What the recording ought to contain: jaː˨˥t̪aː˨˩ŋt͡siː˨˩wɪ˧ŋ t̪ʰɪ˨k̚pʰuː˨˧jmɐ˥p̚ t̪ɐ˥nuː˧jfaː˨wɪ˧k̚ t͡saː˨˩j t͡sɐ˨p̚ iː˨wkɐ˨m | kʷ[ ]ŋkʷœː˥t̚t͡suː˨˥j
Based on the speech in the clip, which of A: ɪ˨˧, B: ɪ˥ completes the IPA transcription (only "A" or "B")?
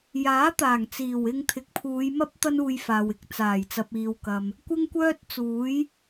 B